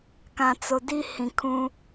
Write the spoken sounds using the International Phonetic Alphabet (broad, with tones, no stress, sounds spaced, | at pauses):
k ã˨ t͡s o˨ d i˦ h ĩ˨ kʰ ũ˦